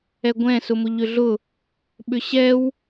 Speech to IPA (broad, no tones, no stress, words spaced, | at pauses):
ɛɡʷɛ̃ sʊmʊʎʏɮʊ | ɓʏɕɛw